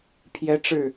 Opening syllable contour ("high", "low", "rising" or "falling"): high